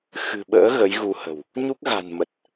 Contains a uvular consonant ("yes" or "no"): no